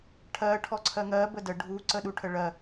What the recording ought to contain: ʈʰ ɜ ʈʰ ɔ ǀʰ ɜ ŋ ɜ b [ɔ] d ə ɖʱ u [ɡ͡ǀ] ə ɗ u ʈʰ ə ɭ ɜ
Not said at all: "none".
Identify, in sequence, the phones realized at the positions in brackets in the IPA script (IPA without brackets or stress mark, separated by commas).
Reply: ə, ǀ